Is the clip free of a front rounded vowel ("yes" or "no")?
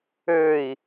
no